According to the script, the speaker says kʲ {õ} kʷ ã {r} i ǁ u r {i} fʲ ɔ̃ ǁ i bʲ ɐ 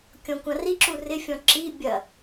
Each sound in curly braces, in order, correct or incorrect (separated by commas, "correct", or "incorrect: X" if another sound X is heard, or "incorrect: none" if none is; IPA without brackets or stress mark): incorrect: ɔ̃, correct, incorrect: ɪ